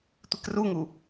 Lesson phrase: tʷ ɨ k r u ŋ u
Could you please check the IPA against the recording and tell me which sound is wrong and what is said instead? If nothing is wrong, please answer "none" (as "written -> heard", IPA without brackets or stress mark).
none